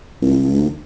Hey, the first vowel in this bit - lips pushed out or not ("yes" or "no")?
yes